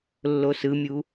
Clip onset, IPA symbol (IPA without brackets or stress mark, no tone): lː